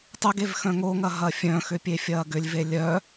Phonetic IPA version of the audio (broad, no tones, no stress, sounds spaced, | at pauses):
tˤ ʏ ɡ e v x œ̃ ŋ o ŋ ɐ ɦ ɐ fʲ œ̃ x ʏ pʲ e fʲ ɐː ɡ ʏ lʲ v e lʲ œ